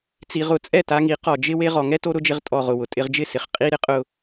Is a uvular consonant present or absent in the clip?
present